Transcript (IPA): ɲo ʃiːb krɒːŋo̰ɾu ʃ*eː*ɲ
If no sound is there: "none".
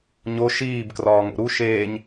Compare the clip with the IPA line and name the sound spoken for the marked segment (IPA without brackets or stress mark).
eː